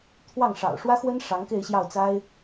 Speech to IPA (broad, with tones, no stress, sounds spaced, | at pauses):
t̪ʰ w ɑ˥˩ ŋ ʂ ɑ̰˨˩ ʊ̯ ʂ w ä˥ x w ə˥ n ʂ ɑ˧˥ ŋ k e˥˧ ɪ̯ ɕ j ɑ˥˩ ʊ̯ t͡s a˥ ɪ̯